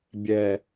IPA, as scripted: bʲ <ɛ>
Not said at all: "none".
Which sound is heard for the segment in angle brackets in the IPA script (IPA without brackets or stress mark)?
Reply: ɛ